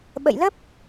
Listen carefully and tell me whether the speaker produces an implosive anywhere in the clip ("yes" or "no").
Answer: yes